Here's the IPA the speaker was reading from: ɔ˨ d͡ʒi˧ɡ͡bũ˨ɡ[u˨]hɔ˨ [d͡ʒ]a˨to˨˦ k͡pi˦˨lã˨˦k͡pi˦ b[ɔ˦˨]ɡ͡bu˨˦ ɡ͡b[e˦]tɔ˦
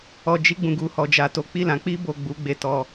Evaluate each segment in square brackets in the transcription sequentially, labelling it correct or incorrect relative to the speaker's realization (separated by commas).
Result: correct, correct, incorrect, correct